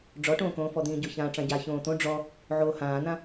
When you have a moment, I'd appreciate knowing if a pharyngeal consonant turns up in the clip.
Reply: yes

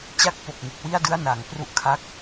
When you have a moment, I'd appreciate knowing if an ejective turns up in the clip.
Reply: no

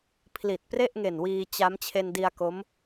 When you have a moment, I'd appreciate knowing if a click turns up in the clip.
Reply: no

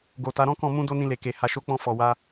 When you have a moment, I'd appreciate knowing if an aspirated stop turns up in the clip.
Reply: no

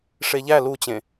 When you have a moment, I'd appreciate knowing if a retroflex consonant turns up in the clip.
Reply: yes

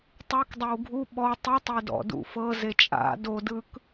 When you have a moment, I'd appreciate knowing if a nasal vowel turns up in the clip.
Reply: no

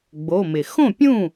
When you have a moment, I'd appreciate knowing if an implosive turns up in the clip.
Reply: no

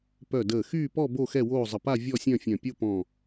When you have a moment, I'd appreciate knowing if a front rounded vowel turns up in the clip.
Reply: yes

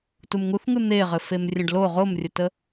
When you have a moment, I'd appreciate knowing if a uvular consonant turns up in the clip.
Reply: yes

